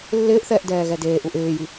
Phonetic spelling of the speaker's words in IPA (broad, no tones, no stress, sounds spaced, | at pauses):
lː ɪː ʔ θ ɛː ʔ d ɛː ɣ ɛ d eː ʔ u ʔ ɪː j i